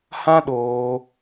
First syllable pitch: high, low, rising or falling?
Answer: high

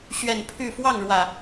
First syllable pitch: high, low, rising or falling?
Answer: low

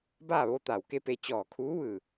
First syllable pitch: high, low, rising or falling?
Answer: falling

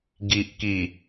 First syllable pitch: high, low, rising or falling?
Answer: low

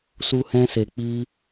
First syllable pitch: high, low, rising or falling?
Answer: high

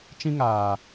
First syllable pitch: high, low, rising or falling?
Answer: high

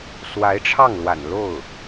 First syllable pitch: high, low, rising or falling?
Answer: rising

